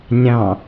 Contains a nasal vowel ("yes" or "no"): yes